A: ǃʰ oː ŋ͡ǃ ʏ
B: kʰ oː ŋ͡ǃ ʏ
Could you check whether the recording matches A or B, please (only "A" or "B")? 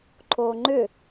A